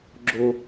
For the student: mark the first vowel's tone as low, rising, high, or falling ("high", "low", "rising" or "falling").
high